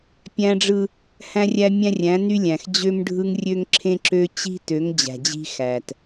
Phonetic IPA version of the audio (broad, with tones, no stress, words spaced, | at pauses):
pʲæ̃˦ɖ͡ʐɯ˦ | hæ̃˦rʲæ˦mʲæ̃˦rʲæ̃˨˦ ny˦lʲæ̃˨x d͡ʑø˦mɖʱɯ˦ŋrʲø˦ŋ ǁʰẽ˦ǁø˦ t͡ɕi̤˦tø˨˦ŋ d͡ʑæ̤˨d͡ʑi̤˦xæ˨t